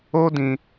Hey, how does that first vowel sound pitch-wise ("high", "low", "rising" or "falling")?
high